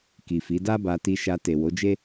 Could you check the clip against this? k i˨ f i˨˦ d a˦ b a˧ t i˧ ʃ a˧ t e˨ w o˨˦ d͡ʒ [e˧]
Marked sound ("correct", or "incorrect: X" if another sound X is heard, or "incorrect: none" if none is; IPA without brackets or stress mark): incorrect: e˦